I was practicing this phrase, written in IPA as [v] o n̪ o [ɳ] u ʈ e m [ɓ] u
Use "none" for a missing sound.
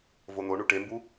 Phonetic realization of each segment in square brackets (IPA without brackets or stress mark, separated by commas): v, ɳ, b